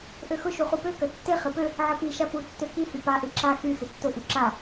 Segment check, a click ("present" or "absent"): present